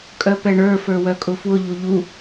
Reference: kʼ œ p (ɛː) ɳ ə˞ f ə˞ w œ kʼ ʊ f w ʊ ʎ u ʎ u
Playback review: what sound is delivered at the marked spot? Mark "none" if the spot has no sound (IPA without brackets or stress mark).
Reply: ɛ